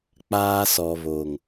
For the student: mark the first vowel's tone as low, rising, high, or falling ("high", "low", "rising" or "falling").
high